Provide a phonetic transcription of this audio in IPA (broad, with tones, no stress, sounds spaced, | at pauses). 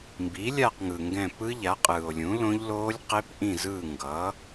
m b i˩˥ lʲ a˦˨ q ŋ ɯː˩ ŋ ɡ ɛ̃˦˨ p ɯ˦˥ ʎ a˩˥ qʼ ɯː˩ o̯ lʲ ũ˩˥ l õ˦˥ ʎ l oː˦˥ lʲ q e˦˥ p ʔ ĩ˦˨ z ɯː˦˨ ŋ ɡ ʌ˩˥